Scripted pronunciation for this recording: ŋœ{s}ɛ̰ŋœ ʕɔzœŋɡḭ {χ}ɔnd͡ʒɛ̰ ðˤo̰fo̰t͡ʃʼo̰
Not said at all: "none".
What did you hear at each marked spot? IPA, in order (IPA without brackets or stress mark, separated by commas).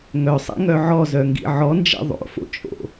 sˤ, ʕ